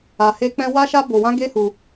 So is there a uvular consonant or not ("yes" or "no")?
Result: no